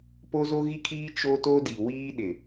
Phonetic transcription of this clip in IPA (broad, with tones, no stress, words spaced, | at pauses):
po˦zo˦ɣi˦kʰiː˦ t͡ʃo˦to˦di˨ wiː˦ ɗɪ˨